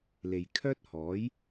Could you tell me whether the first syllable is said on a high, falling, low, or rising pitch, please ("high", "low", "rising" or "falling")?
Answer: low